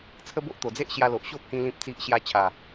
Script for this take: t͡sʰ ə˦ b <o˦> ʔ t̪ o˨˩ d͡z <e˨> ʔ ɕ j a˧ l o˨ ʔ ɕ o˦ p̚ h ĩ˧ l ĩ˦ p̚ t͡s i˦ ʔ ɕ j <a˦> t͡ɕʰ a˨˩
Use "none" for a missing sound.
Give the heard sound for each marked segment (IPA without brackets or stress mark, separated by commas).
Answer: o˦, e˦, a˦